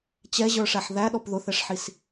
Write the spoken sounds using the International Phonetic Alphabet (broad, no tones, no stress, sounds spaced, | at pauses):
t͡ɕ ɛ ʑ ə˞ ʂ æ ħ ð æ ɗ ɔ p ð ʊ θ ɛ ʂ ħ i s